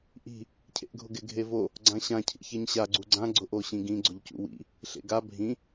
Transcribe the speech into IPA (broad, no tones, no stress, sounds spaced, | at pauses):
ʔ i̤ | cʰ ḛ ʔ ɡʱ ʊ ɡ ɪ ɡʱ e v o | ɡ͡ǀ ã ɕ ã cʰ ḭ ç e ɲ ɕ a ɡ͡ǀ u ɡ͡ǀ ã ɡ͡ǀ ʊ ʔ o ɕ ĩ ɡ ĩ ɡ͡ǀ ʊ ʎ c ṵ w ḭ | ɬ ḛ ɡ a bʱ ĩ